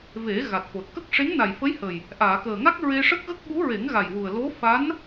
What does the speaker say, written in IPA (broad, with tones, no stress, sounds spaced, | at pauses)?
v e˨˩˦ ɣ a˨˩ t̚ f o˨˩ t̚ k ə˦˥ k̚ ʂ e˧˥ ŋ n a˨˩ j f ə˧˥ j h ə˨˩ j | ʔ aː˨˩˨ k əː˨˩ ŋ a˦˥ k̚ ɹ e˧ ʂ ə˦˥ k̚ ɣ ə˦˥ k̚ ɓ u˧˥ ɹ e˨˩˦ ŋ ɣ a˨˩ j w u˨˩ ə̯ l o˧˥ f a˧˥ n